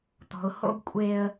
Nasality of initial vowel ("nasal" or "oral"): oral